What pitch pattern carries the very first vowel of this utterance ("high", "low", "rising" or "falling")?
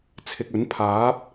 low